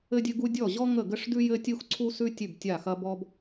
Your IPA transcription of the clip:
ɘ˥dʲɘ˥ɡu˥ dʲɔ˥˩ʑɔ˥ŋə˥˩ ɡə˥ʂdʉ˥jɘ˥ tʲu˥xǀʰu˥sʉ˥ tʲʉ˥˩btʲa˥˩ xɐ˥bɔ˥b

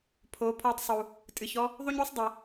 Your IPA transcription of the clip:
pʰo˨˦pʰɔ˧tˤsˤu˨ | tʼɨ˨çɔ˦ | ðˤu˦ɲu˦sˤ dˤi˨

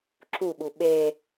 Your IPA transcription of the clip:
ǁuɓu ɓe

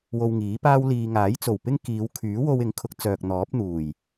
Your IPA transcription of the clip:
wo˧wŋiː˨˥paː˥wliː˧ ŋaː˨˥jt͡so˨˩w pɪ˥ŋkiː˨˧w kʰyː˨˥wo˧wɪ˨˥ŋkʰʊ˨˥k̚ t͡sœː˨k̚n̪ɔː˨˥p̚ n̪uː˨˩j

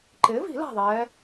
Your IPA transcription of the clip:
ǃɪː˩˥vi̤˨˩˦ la̤˥˨ðˤɛː˧˥

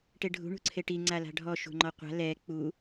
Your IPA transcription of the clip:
ʈeɖʱṳ ɳṳǀʰeʈi ŋ͡ǀala̤ɖʱɔ ʃṳŋ͡ǃɔqʷa̤ lɛ k͡pu

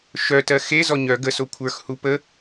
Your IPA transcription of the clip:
ʃœtɜ xe zɔɲœ ɡəso kʷʰə˞x hupə

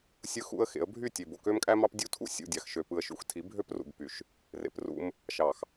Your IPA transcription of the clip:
sʲɯ˦xṵ˦ə̯xḛ˨˦ə̯ bʱy˦˨tʲe˨bo˨ kø˦mkʼæ˦mɑ˦p dʲu˦tʰṵ˦ sʲṵ˦˨dʲɑ˨xʃø˨ pɯ˨ə̯ʃṵ˨xtʰi˨˦bʱø˦p rṵ˨bpy˨ʃ | rḛ˨prṵ˦m | ʃɑ˨x

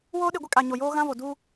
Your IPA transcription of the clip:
woː˦ɗɪ˦˨ɡʷɪ˦kʼa˨ ɲo˨joː˦ɣã˦vo˨ du˦

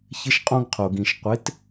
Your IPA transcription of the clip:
çɪ˦ʃqʼõ˦ɡqʰo˨ɡĩ˨ʃ qʷɪ˨˦t

